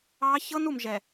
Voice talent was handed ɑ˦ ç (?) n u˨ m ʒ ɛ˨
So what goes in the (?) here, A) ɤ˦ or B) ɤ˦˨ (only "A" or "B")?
A